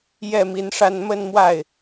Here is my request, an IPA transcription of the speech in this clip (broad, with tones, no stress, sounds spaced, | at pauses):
j ɛ˥˩ m i˧˥ n ʂ a˥˧ n m ə˥˧ n m w a˥˩ ɪ̯